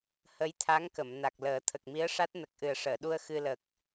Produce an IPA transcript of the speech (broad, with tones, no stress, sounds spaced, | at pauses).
h ə˧˥ j t̪ʰ a˧˥ ŋ k ə˨˩˨ m n a˨˩ k̚ l əː˨˩˦ t̪ʰ ə˨˩ k̚ m i˧˥ ə̯ ʂ a˦˥ t̚ n ə˨˩ k̚ ʔ ɨ˨˩ ə̯ ʂ əː˨˩˨ ɗ u˧ ə̯ x ɨ˧ l ə˨˩ k̚